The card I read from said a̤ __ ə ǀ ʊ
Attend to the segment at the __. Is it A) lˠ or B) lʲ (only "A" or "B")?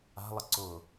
A